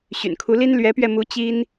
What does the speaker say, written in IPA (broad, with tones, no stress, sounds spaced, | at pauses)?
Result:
ɕ y̰˨˩ n kʰ u˧˥ l i˥ n l ɥ ɛ˧˥ p ɥ ɛ˧ m u˧˥ t͡ɕ i˥ n